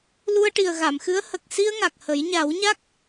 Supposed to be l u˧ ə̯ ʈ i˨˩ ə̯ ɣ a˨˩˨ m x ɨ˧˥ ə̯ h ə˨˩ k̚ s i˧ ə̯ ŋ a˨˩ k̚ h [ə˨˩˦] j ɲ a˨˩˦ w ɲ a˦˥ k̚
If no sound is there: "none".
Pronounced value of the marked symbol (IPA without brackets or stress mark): ə˨˩˦